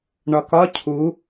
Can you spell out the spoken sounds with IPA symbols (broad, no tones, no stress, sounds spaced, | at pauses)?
ɳ ɒ k ɒ cʰ u